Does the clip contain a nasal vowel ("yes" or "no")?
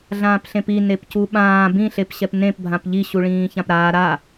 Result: yes